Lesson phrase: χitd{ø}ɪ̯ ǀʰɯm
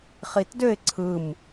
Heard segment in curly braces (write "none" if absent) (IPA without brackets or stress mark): ø